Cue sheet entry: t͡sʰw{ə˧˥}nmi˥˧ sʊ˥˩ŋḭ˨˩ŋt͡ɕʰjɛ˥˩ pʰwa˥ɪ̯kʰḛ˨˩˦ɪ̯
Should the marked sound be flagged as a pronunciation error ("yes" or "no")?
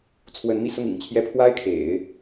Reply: no